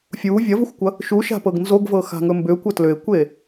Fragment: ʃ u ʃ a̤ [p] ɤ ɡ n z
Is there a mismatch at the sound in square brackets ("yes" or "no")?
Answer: no